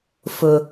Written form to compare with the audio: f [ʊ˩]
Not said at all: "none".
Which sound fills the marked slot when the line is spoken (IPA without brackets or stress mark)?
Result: ʊ˩